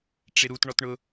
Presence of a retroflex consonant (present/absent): present